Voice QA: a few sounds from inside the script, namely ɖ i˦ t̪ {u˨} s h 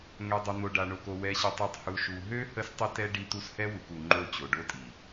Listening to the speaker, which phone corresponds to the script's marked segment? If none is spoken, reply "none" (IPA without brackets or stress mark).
u˦